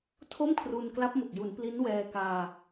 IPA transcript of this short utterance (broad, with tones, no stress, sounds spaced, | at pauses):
tʰ o˥˩ m kʰ r u˧ n k l a˦˥ p̚ m o˨˩ k̚ j u˩˦ n p l i˦˥ n w ɛː˧ k aː˧